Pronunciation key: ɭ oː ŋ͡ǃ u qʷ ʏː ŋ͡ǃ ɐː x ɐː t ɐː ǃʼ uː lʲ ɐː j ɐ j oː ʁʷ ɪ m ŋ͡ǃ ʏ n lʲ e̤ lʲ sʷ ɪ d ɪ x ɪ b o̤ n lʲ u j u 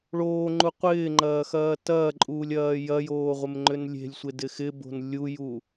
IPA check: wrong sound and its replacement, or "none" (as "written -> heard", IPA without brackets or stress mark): ʏː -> ɪː